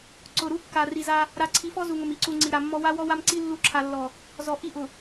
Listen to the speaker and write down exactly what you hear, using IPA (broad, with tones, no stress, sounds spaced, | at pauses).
ǀ ʊ˨ ɾ u˦ kː a˨ r i˨ z a˦ | ɾ a˨ ǀʰ i˨˦ f ɔ˦ z u˨ ŋ ʊ˨ m i˨ ǀ u˨ ŋ͡ǀ i˨ ɾ a˨ mː ɔ˦ w a˦ w ɔ˦ w a˦ m ǀ i˦ lː u˦ ǁʰ a˨ lː ɔ˨ | z ɔ˨ ʔ i˦ ʔ ʊ˨